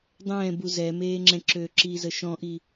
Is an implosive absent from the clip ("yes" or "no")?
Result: yes